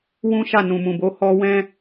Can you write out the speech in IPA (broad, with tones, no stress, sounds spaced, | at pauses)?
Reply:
w ũ˦ ʃ a˦˨ n ũ˨ m ũ˨ b o˨˦ h ɔ˦ w ɛ̃˦